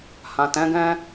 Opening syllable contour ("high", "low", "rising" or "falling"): low